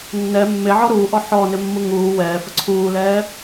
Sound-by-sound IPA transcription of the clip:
nː ɛ mː e ʕ ɔ ɾ uː ʔ ɔ ħ ɔ n ɪ mː u ŋ uː w ɛː f ə ǀʰ uː l ɛː

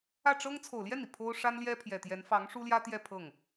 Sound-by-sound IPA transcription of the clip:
ä˥˩ ʈ͡ʂ ɤ˥ ŋ t͡sʰ o˨˩ ʊ̯ l j ɛ˥˩ n i˩ pʰ o˥ ʊ̯ ʂ a˥ n l j ɛ˥ pʰ j ɛ˨˩ t̪ j ɛ˧˥ n f ɑ˧˥ ŋ ʂ u˥ l j ä˥ t̪ j ɛ˥˧ pʰ ɤ˥˩ ŋ

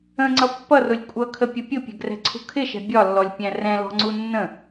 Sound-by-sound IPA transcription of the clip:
ə̃ ŋ͡ǀ ʌ pː ʌ r ʊ lʲ kʷʼ ʌ kʰ ə pʲ ə pʲ ʊ pʲ ɛ̤ ɡ r ɛ̤ ǀʰ ṳ kʰ ɪ ʃ ɛ̤ bʲ ɒ lː ɔ lʲ pʲ æ̃ r ɛ̃ l ɔ̤ ŋ͡ǀ u nː ə̃

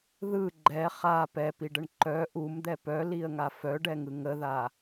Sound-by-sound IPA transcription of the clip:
ð ɯ ɡ͡ǃ ɛ χ a p ɛ p i ɖ ə ɳ ǃ œ ʔ u m d̪ ɛ p œ l i ə̯ ŋ a f œ ɖ ɛ ŋ ɯ ŋ ə ð a

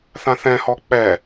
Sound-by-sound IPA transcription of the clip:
θ ã θ ɛ̃ h ɔ k͡p ɛ

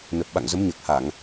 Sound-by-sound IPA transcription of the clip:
n ə˨˩ p̚ ɓ a̰˧˨ ŋ z ə˨˦ m ɲ əː˨˩ k̚ h a˧˩˨ ŋ

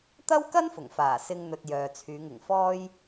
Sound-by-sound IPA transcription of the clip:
t̪ ɐ˥ w k ɐ˥ n f ʊ˨˩ ŋ f aː˨˩ s ɪ˧ ŋ n̪ ɵ˨ t̚ j œː˨ t͡sʰ yː˨˧ ŋ ɪ˨˩ ŋ f ɔː˥ j

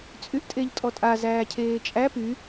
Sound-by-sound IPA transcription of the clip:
t͡sʼ y ʔ tʼ e ʎ tʼ ɔ tʼ a z æː cʰ eː t͡ʃʼ æ p y

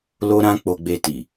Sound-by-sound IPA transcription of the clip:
l o˦ ɾ ã˦ k͡p o˧ ɡ͡b e˧ t i˨

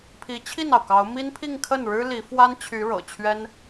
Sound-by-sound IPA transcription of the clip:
pʰ i˧˥ t͡ɕʰ i˥˩ n ɑ˩ ʊ̯ k ɑ˧˥ ʊ̯ m i˥ n pʰ i˥˧ ŋ kʰ ə˥˩ n ɻ ɻ̩˥ l i˧˥ f w a˥ n t͡ɕʰ y˧˥ ɻ ɤ̰˨˩ t͡ɕʰ ɥ ɛ˥ n

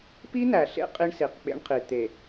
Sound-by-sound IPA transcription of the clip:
p i˦ n̪ æ˨ ɬ ḛ˦ qʼ i˦ ɳ s i˨ q k͡p ḛ˦ ɳ qʰ i˨ t̪ e˨

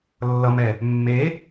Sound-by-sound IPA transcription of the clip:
lː ʌ m ɛ | mː e

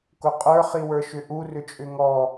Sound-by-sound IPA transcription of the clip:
k ʊ qʼ ə˞ χ i w ə˞ ʃ ʏ ʔ u r ʏ t͡ʃʼ ʏ ŋ ɔ

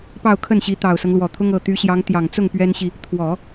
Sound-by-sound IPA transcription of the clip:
p ɑ˥˧ ʊ̯ kʰ ə˥˩ n ɕ i˧˥ t̪ ɑ˨˩ ʊ̯ s ɤ˦ ŋ l w ɔ˨˩ t̪ʰ ʊ˥ ŋ ɤ˨˩ t̪ y˧˥ ɕ j ɑ˧˥ ŋ t̪ j ɑ˨˩ ŋ t͡s ʊ˥˩ ŋ p ɥ ɛ˥ n ɕ i˨ | t̪ʰ w ɔ˨˩˦

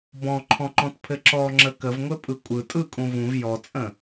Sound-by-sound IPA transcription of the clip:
b ɔ̃ ǃʰ ɔ̃ ŋ͡ǃ ɔ̃ t pʰ ɘ ǁ ɔ ŋ͡ǁ ə k ə v ŋʷ ɘ pʼ ɯ kʷʼ ɯ tʼ ɯ kʼ ũ v ũ v j ɔ t͡sʼ ə̃

